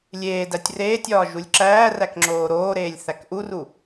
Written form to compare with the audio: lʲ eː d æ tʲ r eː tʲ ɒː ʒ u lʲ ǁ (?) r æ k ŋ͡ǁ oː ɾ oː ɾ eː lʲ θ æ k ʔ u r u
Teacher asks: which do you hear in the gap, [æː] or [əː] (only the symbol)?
æː